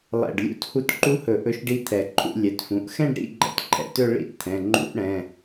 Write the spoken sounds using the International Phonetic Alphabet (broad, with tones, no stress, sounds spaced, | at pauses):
lˠ ɛ̰˧˩ ɖ lʲ ṵ˥˧ t h u˧˩ t ǃ u˧ h ɵ˨˩˦ ʔ ɵ˧˥ ʃ ɖ i˧˥ t̪ʰ ɛ˨˩˦ ǃʰ ṵ˥˧ lʲ ɛ˩˧˩ t f ũ˩˧˩ ʔ x ɛ̃˥˧ ɖ ɾ ḭ˥˧ ɡ͡ǃ ɛ̰˧ t ǃʰ ɛ̰˧˩ t ɵ˥˧ ɭ ḭ˥˧ t t̪ʰ ɛ̃˩˧˩ ŋ͡ǃ ṵ˧ ʔ ɽ ɛ̃˩˧˩